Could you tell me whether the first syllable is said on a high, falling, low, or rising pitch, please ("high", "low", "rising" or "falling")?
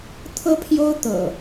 high